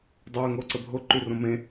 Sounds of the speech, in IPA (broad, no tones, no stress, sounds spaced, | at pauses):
dˤ əː ŋ o ǀ ə bʱ o ǃ y r õ m ẽ